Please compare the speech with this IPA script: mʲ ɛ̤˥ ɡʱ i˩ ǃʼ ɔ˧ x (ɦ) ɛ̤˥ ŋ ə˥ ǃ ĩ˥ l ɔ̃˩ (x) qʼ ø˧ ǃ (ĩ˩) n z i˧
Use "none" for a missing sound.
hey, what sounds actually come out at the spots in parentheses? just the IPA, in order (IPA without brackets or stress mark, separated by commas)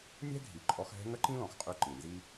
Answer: ɦ, x, ĩ˩